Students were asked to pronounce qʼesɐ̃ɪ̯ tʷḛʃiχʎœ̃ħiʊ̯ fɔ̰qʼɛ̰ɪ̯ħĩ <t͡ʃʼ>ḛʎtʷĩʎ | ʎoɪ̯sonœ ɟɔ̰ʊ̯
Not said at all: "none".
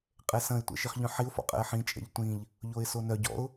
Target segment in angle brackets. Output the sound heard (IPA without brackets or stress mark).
t͡ʃʼ